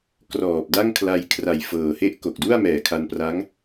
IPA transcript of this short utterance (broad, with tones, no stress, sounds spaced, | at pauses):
k r ɔː˨˩ p̚ d a˥˩ ŋ kʰ l a˧ j kʰ r a˨˩ j f ɤː˨˩ h e˥˩ ʔ k o˨˩ k̚ d u˥˩ a̯ m ɛː˨˩ kʰ a˧ n p r a˦˥ ŋ